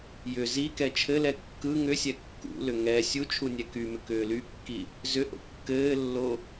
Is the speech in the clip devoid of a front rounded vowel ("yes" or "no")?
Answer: no